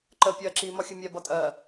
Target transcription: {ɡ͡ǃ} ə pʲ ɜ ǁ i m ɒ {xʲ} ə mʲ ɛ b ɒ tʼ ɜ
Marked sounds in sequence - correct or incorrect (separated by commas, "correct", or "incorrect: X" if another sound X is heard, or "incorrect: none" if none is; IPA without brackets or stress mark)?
incorrect: ǃ, correct